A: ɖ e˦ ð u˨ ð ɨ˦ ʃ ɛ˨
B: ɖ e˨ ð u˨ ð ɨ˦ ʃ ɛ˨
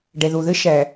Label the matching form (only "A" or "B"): B